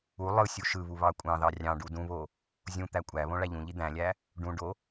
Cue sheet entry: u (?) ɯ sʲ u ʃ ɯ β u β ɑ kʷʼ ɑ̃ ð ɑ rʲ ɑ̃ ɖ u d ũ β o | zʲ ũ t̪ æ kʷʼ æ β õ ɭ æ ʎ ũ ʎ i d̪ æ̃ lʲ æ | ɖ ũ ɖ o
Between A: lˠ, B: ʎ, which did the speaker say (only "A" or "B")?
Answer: A